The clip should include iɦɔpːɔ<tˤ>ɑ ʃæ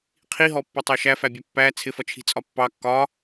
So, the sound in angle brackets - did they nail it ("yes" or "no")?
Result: yes